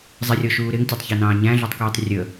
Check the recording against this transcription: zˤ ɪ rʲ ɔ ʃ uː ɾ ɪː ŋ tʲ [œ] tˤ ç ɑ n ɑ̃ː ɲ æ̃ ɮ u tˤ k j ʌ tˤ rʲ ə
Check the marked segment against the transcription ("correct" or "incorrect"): incorrect